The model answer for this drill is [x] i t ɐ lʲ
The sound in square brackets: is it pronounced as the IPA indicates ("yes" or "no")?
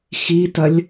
yes